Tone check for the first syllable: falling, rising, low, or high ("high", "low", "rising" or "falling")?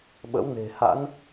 rising